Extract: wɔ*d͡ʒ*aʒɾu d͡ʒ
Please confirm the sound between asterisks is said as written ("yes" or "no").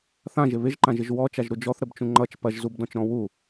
no